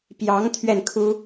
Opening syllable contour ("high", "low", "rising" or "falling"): rising